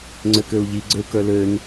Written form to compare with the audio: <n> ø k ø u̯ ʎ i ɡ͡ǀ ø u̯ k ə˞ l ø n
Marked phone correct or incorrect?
incorrect